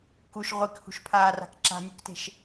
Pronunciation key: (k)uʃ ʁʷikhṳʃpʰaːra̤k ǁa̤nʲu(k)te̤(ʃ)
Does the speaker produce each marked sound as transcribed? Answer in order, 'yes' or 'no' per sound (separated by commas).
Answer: yes, yes, yes